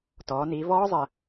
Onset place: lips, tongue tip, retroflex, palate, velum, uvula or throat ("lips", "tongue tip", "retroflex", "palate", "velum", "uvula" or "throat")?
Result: tongue tip